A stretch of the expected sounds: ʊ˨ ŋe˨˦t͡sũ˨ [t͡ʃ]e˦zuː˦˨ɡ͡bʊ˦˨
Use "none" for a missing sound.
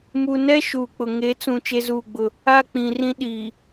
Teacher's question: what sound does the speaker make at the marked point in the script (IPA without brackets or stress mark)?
t͡ʃ